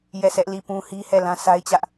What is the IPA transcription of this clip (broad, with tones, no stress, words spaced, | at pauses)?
jɛ˦˨sʰɛ˦ʔ li˦˨pũ˦ hi˦hɛ˦˨lã˦ sʰa˦ɪ̯t͡ɕä˦ʔ